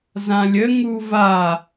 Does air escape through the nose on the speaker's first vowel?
yes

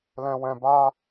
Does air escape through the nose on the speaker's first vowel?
yes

